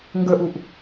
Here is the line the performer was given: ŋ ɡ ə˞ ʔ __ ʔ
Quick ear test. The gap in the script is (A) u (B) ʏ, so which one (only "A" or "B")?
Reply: A